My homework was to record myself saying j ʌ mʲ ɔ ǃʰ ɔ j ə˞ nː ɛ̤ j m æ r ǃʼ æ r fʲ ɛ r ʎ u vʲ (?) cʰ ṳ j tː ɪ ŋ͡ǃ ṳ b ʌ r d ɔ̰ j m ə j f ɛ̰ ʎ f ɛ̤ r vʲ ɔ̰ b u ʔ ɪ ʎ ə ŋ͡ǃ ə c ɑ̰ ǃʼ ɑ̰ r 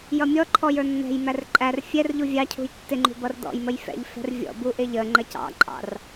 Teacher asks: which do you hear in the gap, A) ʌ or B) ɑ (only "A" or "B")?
B